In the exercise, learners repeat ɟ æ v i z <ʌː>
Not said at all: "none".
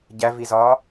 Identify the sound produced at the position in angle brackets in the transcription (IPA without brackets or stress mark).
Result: ɒː